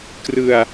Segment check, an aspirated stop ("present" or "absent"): absent